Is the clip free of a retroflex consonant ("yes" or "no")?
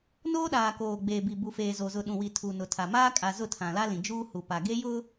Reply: yes